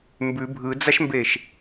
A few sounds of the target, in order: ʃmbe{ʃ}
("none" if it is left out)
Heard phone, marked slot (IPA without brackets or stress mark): ʃ